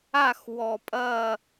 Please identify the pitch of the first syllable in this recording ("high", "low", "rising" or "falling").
falling